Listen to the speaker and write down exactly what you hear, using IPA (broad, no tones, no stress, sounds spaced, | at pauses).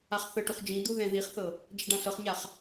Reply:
a χ θ ɤ ʈ u χ d͡ʒ ĩ d̪ u ð ɛ̃ ð i χ θ ɤ | d͡ʒ ɛ ɖ ã ɬ ɤ χ ɲ a χ